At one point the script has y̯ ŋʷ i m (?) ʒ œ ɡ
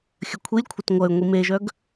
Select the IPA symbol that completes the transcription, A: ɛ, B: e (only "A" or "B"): B